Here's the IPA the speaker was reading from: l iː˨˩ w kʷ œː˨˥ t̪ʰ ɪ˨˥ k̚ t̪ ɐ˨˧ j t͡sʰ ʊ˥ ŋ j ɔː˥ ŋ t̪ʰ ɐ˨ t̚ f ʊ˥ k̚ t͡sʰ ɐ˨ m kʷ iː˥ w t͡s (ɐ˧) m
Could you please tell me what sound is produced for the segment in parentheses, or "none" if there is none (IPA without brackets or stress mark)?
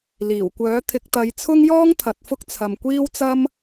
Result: ɐ˥